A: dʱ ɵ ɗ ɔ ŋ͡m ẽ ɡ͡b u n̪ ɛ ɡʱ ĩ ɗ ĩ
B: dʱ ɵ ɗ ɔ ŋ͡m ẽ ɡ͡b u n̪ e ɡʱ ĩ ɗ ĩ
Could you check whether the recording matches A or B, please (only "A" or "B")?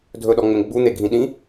B